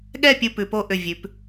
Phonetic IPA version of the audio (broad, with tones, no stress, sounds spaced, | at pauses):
ɠ ɛ˥˧ pʲ u˥˧ p ʉ˩˧ p o˥ ʔ ʏ˧˩ vʲ ʉ˩˧ p